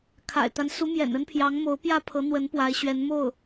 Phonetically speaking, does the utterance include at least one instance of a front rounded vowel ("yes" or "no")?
no